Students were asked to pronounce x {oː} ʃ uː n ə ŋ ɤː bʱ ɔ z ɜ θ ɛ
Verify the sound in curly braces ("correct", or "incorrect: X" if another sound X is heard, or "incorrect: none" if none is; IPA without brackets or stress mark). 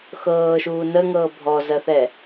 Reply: incorrect: ɤː